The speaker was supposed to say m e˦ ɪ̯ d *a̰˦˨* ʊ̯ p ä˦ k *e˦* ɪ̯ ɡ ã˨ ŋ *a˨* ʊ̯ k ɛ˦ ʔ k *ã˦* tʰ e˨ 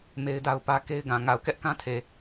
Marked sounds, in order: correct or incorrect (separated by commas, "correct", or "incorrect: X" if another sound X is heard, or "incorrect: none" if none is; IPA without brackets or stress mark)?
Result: incorrect: a˦, correct, correct, correct